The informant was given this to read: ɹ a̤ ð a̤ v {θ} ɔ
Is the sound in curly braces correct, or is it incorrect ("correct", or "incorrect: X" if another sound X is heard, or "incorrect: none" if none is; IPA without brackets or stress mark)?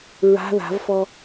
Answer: incorrect: f